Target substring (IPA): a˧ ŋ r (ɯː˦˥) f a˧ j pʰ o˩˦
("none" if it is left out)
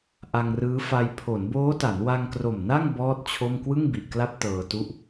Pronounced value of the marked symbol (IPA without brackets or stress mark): ɯː˦˥